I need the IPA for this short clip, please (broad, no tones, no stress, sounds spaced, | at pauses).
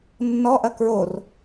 nː ɔ ʔ ɐ k ɹ o r